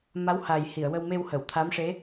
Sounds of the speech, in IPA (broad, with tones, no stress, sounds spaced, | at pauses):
m a˧˥ w h a˨˩ j h i˨˩˨ ə̯ w ə˧ w m e˧ w h ə˨˩˨ w t̪ʰ a˧˥ m ʂ e˧˥